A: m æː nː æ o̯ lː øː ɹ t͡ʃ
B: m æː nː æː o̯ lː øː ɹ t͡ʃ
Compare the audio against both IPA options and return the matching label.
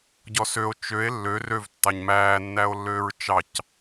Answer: A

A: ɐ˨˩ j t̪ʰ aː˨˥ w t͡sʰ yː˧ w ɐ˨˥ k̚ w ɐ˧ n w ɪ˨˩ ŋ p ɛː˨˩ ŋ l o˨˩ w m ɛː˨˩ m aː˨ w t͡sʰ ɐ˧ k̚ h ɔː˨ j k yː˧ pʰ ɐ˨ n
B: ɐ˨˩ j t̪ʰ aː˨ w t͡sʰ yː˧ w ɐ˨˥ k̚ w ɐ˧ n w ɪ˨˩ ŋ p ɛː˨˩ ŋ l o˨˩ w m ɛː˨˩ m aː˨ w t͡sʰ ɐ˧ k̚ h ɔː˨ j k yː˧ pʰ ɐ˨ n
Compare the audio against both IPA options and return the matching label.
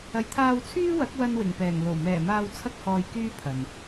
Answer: B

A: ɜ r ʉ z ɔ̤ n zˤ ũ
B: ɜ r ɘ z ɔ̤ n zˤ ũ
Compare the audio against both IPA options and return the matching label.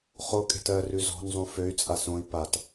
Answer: A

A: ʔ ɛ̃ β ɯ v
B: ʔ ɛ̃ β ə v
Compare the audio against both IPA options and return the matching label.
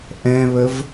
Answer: B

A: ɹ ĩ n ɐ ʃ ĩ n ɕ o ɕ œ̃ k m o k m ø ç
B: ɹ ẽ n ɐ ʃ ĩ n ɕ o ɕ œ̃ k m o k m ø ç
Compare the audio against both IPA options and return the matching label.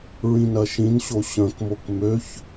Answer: A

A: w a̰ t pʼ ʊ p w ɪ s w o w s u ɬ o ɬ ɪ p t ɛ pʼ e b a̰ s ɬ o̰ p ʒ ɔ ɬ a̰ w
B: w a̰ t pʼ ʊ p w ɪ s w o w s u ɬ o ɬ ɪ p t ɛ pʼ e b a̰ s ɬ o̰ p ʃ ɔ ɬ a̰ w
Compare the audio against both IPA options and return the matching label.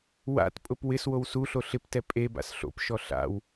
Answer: B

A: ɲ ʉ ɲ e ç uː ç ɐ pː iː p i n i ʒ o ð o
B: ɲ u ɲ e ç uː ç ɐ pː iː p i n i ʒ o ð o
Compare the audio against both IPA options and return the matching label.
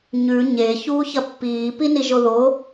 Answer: A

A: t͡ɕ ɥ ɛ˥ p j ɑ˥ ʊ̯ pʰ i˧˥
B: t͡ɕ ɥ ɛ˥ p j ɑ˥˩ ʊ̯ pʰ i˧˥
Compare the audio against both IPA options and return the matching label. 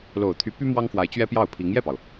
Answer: B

